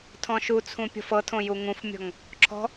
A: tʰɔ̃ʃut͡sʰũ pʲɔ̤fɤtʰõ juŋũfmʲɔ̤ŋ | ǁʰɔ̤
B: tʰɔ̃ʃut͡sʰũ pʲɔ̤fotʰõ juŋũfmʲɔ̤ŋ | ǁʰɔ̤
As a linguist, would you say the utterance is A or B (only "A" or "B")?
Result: A